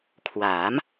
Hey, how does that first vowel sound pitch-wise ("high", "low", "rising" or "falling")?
rising